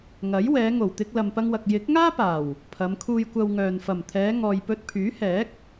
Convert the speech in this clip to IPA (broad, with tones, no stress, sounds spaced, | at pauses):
ŋ ɐ˨˥ j w ɛː˨˧ ŋ o˨˩ w t̪ ɪ˧ k̚ l ɐ˨ m p ɐ˧ ŋ w ɐ˨ k̚ j ɪ˨˥ k̚ ŋ aː˥ p aː˨˩ w | pʰ ɐ˨˧ m kʰ uː˧ j kʷ ɐ˧ w ŋ œː˨ n f ɐ˨˩ m t̪ʰ ɛː˨˧ ŋ ɔː˨ j p ɵ˧ t̚ pʰ yː˨˥ h ɛː˨˥ k̚